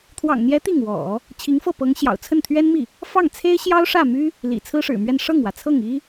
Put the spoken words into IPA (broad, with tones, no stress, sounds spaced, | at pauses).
t̪ʰ w ɑ̰˨˩ ŋ n̪ j ɛ˧˥ t̪ i˥˩ ŋ w ɔ̰˨˩˦ | t͡ɕʰ i˧˥ ŋ f ɤ˥˩ p ɤ˧˥ ŋ ɕ j ɑ̰˨˩ ʊ̯ t͡sʰ ə˥˩ n t̪ʰ ɥ ɛ˥ n m i˥˩ | f ɑ˥˩ ŋ t͡sʰ e˥ ɪ̯ ɕ j ɑ˥ ʊ̯ ʂ ä˥˩ m y˥ | l ḭ˨˩ t͡sʰ ɹ̩˥ ʂ ɻ̩˨˩ m ɥ ɛ˥˧ n ʂ ɤ˥˩ ŋ w ä˩ t͡sʰ ɤ˥˩ ŋ i˥